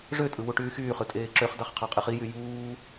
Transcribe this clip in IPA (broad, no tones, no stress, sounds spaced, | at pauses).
ʐ ø tʼ ɯ w u ʈ yː x yː χ ɯ tʼ eː ǁ ø χ d ɑ χ qʰ ɑ qʼ e χ i j y j uː